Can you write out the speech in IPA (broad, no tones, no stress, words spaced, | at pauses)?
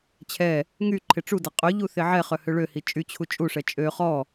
t͡ɕʰɛ | ŋy ǃʰɪʈ͡ʂudɐ qʼøʎu θɪʕɛχœ høɭøhi t͡ʃʼyt͡ɕʰu t͡ʃʼuʂɛ t͡ʃʼø χɔ